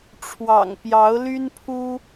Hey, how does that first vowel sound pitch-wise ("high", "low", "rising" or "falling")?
low